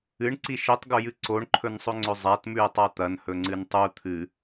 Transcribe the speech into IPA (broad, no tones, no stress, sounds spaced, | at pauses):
ɨ ɳ ǀ i ʃ i tˤ ɡ o j ɨ ǀ o ɳ ǃʰ ɵ n sˤ ɵ ŋ͡ǀ ɵ zˤ a t m ʉ e̯ tˤ a t̪ ɐ n h ɵ ŋ͡ǀ ɨ n tˤ u t̪ʰ ɨ